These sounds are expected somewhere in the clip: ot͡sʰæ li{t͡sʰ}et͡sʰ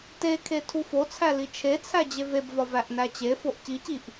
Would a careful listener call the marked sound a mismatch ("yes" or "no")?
yes